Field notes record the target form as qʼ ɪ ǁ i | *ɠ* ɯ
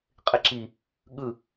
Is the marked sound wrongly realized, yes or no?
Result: no